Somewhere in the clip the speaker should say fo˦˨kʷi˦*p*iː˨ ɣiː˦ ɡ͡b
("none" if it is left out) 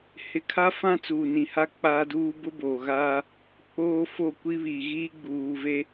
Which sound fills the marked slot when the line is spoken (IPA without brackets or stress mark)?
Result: β